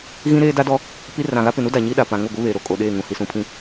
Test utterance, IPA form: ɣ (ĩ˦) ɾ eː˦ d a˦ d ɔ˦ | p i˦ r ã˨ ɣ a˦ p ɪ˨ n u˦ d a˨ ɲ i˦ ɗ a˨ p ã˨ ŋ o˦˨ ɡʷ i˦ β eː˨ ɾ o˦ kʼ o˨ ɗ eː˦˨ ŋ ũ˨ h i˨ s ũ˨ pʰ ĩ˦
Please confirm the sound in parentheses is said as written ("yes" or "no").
yes